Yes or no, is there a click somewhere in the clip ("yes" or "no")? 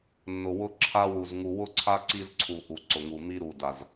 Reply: yes